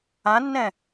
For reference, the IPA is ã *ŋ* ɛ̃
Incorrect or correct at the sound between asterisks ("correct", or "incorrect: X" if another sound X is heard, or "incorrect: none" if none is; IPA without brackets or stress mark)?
incorrect: nː